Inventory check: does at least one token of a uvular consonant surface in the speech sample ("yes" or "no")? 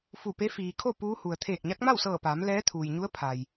no